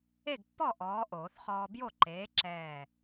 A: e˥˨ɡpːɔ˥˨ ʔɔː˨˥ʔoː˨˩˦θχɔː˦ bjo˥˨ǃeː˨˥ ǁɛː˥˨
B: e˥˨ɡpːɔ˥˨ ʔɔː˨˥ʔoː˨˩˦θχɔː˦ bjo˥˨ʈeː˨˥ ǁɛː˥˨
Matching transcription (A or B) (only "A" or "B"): A